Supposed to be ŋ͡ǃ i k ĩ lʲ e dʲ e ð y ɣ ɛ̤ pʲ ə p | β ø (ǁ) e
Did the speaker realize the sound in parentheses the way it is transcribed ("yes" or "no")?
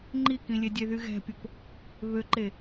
no